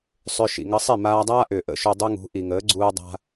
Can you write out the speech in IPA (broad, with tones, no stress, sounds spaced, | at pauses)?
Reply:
sˤ ʏ˧ ʃ ḭ˩ ŋ ə˧ sˤ i˥˩ m aː˧ dˤ aː˥ ʔ ʏː˩ ʔ ə̰˥ ʃ ʏ˧ dˤ ʏ˥ ŋ ṳ˩˥ ʔ i˩ ŋ əː˩˥ ɡ͡ǀ uː˧ dˤ a̤˧